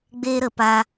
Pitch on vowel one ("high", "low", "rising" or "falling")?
high